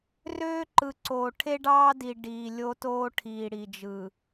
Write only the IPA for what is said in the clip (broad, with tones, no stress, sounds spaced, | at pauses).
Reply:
r øː˦ ǃ ɯ˨ ǀ oː˨ ʈʰ e˦ ɖ ɑː˦ d i˨ ɖ iː˨ lʲ o˦ t oː˦ ʈʰ iː˨ ɽ i˨ d͡ʒ ɯ˨